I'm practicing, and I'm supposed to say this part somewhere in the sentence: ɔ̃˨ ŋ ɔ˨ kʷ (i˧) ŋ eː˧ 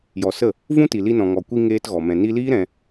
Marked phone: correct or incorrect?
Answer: correct